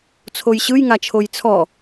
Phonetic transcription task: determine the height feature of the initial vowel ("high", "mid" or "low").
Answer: mid